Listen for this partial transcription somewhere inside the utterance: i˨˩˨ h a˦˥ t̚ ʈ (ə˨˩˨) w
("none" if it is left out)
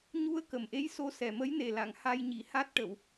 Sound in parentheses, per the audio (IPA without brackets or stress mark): ə˨˩˨